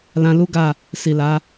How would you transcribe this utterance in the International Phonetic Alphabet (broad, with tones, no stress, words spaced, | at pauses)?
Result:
lã˧lu˦ɡa˦˨ | si˨la˨˦